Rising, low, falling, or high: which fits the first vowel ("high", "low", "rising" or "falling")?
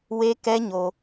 high